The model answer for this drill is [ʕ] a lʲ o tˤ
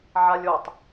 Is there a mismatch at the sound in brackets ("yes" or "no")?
no